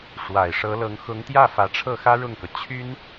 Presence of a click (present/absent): absent